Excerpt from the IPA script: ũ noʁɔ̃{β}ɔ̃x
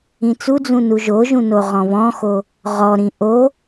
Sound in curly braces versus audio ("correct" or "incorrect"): correct